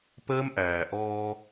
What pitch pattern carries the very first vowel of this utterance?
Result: high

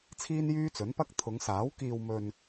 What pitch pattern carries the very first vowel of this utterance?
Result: high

